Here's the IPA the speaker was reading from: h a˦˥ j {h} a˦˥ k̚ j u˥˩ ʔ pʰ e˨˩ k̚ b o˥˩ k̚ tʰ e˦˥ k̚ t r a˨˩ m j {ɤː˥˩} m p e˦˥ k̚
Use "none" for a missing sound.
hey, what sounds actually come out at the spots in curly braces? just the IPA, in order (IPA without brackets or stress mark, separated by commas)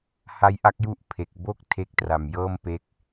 ʔ, ɤː˥˩